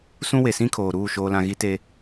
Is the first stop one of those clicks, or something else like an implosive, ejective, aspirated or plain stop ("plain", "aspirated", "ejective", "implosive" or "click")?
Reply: aspirated